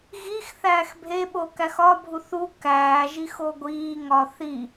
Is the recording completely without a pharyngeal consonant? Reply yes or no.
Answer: yes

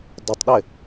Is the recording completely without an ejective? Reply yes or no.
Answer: yes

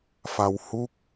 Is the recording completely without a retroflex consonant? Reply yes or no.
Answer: yes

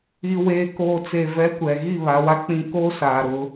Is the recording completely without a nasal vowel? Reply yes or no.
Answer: no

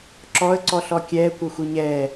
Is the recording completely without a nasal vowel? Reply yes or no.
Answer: yes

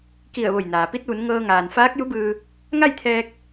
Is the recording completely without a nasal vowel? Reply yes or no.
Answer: yes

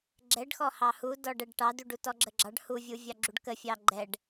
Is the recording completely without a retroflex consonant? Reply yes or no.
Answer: no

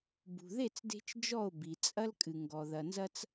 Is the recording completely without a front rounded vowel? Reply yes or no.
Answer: yes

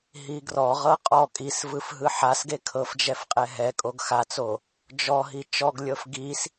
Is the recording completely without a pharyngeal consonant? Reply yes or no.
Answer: no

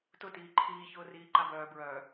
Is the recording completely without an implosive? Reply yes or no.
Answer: yes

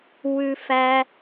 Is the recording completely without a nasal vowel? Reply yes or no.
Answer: yes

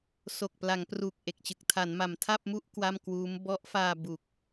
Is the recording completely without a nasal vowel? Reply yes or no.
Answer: yes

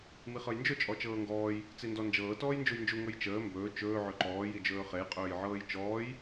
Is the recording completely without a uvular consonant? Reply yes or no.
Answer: no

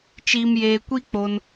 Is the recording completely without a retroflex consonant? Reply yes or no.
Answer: yes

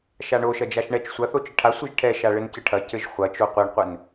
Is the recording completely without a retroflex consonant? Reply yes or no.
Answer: no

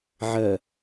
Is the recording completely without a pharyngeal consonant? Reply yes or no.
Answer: no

